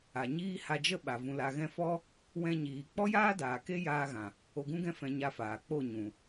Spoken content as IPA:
a˨ ɲ iː˦ h a˧ d͡ʒ ə˦ ɓ a˨ v ũ˨ l a˨ ɣ ɛ̃˧ f ɔ˦ | w ɛ̃˧ ɲ iː˨ k͡p ɔ˦ j aː˦ d aː˨ k e˦ j aː˧ ɣ ã˨ | o˧ ɡ ũ˦ ɡ ɛ̃˦ f ɛ̃˧ ɲ a˧ f aː˨ k͡p o˦˨ ɲ ũ˨

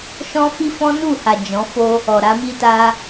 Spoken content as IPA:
ʃ ɔ̃˦ f i˦ f ɔ̃˦ n u˦˨ h a˨ d͡ʒ ɔ̃˨˦ f o˦ | ɔ˨ ɾ a˨˦ m i˦ t a˧

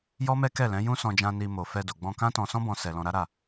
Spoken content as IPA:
j ɔ˦ m ɛ˦ k ɛ˦˨ l ɛ̃˨˦ j ũ˦ s ɔ̃˧ d͡ʒ ã˧ n i˧ m o˨ f ɛ˧ d o˨ ɡ͡b ɔ̃˧ k ã˦ t ɔ̃˧ s ɔ̃˦ b ɔ̃˧ s ɛ˧ l ɔ̃˧ ɾ a˦ ɾ a˦˨

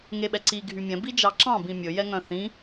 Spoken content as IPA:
ŋ e ɓ ɛ ǀ i ɡʱ y mʲ ɛ̃ b i d͡ʒ ɑ ǁ ɑ̃ b ĩ mʲ ɵ j ɛ ŋ œ̃ θ ĩ

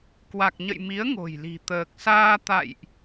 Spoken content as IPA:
k w a˨˩ k̚ ɲ ə̰˧˨ j m i˨˦ ə̯ ŋ o̤˨˩ j l i̤˨˩ t̪ əː˨˩ k̚ s aː˧ t̪ a̰˧˨ j ʔ

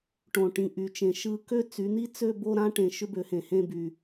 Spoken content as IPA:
ʈ õ˧˩ ʈ ĩ˧ ʔ y˩˥ t͡ʃ ẽ˩˥ ʃ ɯ˧ k ø˥ t͡s y˩˥ n̪ i˥ t͡s ø˥˧ b o˥˧ ɾ ã˥ ʈ ẽ˧˩ ʃ ʏ˥ b ø˩˥ h ẽ˩ h ẽ˥˧ b y˩

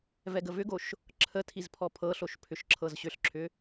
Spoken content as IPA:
v ɛ ɡ ə v ʏ ɡ o ʃ | ǁʰ ə tʰ i z pʰ ɔ pʰ ɤ ɬ o ʃ pʰ ʏ ʃ ǁʰ ɤ z ɕ ʏ ɬ ǁʰ ʏ

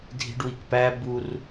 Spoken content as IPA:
dʱ i̤ ɖ w i k p æ b u r

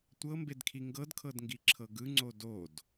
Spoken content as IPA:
tʷ ɤ m b e d kʰ i ŋ ɡ ɤ d kʰ ɤ d ŋ ɡ i ǁʰ ɤ ɡ ɯ ŋ͡ǀ o d o d

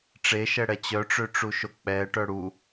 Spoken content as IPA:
ʈ͡ʂ e ʃ ɛ ɽ ɛ t͡ɕ œ ʈ͡ʂ ø ʈ͡ʂ u ʃ o k͡p ɛ ʈ œ ɽ u

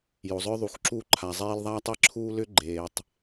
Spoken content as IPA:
j o˨ zˤ œ˦ ðˤ u˨ x ǁ uː˦ ǃʰ a˨ zˤ eː˦ l ðˤ aː˦ tˤ e˦ ǁʰ uː˦ l ʏ˦ ɡ͡ǃ eː˨ tˤ

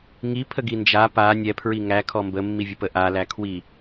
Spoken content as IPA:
ŋ i pʰ ə ɡ i n d͡ʒ a p a nʲ ɛ pʰ ɹ i ŋ æ kʰ ɔ m b ə mː i vʲ ə p ə ʔ a l æ kʰ w i

